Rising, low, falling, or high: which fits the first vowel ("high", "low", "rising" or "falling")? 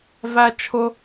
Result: high